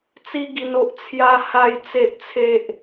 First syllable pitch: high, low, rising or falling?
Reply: high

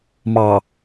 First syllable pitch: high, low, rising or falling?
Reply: low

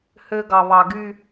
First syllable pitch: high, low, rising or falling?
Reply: high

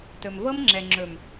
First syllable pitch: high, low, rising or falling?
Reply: low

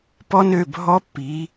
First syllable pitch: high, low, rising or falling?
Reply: high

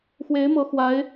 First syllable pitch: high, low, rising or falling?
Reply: rising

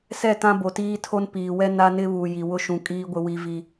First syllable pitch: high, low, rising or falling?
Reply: falling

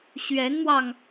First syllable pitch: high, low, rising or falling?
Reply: rising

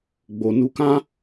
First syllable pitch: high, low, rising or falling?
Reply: low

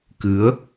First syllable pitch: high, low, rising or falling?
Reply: rising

